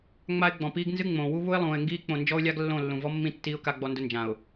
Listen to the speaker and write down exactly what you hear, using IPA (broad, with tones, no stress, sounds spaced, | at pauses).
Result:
ŋ͡m a˦ ɪ̯ ɡ͡b ɔ̃˨ p iː˦ ɡ n z ɨ˦ ŋ͡m õː˨ w u˦ β u˦ ɪ̯ lˠ ũː˨ ɪ̯ ŋ ɡ iː˦ k͡p õ˨ n d͡ʒ ɔ˦ ʊ̯ lʲ a˦ ɡ lː õ˦˨ lː ũ˨ v ɔ˦ mː ĩ˦ tː iː˦ ʊ̯ k a˦ ɡ͡b ɔ˦ n d ʊ˦ n d͡ʒ ã˨ ʊ̯